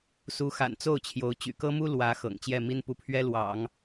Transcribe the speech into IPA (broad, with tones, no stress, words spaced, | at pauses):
su˧˥xa̰˨˩n t͡so˥˩ʊ̯t͡ɕʰjo˧˥ʊ̯ t͡ɕy̰˨˩kɤ˥mu˥ lwä˧˥ xɤ̰˨˩ŋt͡ɕjɛ˥˩mi˥n pu˥˩ pʰɥɛ˥lwɑ̰˨˩˦ŋ